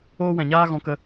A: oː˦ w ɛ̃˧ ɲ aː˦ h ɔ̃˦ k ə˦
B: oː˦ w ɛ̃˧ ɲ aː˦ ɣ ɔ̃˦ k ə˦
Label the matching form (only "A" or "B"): B